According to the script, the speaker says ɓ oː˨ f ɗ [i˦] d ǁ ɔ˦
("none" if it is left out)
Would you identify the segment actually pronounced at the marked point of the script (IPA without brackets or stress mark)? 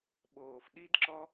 i˦